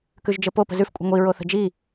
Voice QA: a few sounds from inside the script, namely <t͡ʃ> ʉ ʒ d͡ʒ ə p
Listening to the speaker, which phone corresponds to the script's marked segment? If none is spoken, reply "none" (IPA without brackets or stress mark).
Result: k